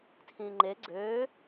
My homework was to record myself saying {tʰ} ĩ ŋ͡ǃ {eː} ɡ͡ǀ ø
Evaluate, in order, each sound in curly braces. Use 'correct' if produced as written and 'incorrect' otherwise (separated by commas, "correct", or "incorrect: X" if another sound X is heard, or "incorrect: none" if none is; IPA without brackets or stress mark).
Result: correct, incorrect: e